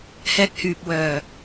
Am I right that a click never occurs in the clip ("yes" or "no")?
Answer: yes